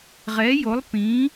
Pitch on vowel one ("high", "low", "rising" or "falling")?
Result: rising